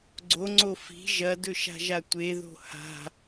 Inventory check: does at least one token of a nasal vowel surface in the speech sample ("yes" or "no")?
no